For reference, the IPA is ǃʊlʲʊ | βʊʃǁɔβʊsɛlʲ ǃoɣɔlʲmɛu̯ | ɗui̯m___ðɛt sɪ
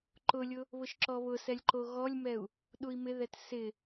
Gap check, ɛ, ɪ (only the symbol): ɪ